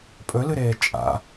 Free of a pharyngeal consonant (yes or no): yes